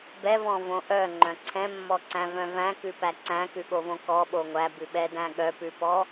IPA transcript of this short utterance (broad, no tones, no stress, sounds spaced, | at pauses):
b ɛ v ɔ̃ v õ ʔ œ ŋ͡ǃ œ̃ ǀʰ ɛ̃ mː ɔ ǀ æ̃ v œ̃ v æ̃ k ʉ p æ ǀ æ̃ k ʉ ɠ o v õ k ɔ ɓ o ŋʷ æ b ʉ ɓ ɛ d æ̃ ɠ œ p ʉ p ɔ